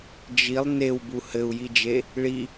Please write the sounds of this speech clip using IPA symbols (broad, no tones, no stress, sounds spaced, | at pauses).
d͡ʒ i lˠ n e w b u h ɘ u̯ j i d͡ʒ e | ɭ i